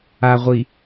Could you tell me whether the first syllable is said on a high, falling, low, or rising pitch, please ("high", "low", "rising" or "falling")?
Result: low